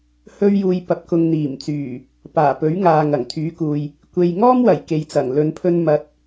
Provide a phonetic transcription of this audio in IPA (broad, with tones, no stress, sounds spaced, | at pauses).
h ɵ˧ ɥ j uː˨ j p ɐ˨ p̚ k ʊ˨ ŋ n̪ iː˨˩ m t͡s yː˨˩ | p aː˨˩ p ɵ˨˥ ɥ ŋ aː˨ ŋ ɐ˨˩ ŋ t̪ʰ yː˨˥ k uː˨ j | kʷ e˨ j ŋ ɔː˥ m w ɐ˨˩ j k e˨˧ j t͡s ɐ˨˩ ŋ l ɵ˨˧ n pʰ ɵ˧ n m ɐ˨˥ t̚